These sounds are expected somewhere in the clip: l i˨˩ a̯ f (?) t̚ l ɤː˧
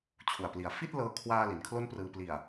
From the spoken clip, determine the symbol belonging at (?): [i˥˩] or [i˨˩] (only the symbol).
i˥˩